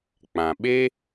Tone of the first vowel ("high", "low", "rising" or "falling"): low